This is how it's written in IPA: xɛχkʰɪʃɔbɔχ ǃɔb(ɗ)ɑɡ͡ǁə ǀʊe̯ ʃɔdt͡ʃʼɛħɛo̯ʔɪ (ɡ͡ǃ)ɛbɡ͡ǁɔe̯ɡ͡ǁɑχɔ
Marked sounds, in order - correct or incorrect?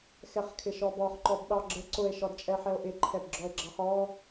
correct, incorrect

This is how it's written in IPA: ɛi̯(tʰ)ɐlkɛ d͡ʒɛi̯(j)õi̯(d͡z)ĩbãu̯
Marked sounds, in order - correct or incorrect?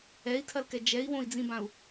correct, incorrect, correct

